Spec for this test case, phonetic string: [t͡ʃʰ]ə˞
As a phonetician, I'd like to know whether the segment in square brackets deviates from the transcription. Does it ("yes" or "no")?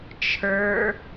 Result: no